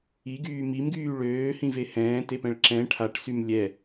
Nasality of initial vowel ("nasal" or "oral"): oral